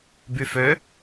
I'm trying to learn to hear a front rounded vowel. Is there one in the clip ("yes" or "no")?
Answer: yes